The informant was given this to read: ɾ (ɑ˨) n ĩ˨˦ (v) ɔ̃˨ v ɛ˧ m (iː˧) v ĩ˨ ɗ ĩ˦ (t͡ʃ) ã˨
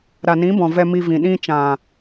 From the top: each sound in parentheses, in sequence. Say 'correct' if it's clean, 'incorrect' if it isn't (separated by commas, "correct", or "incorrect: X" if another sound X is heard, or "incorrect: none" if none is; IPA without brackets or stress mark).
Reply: incorrect: a˨, incorrect: b, incorrect: i˧, correct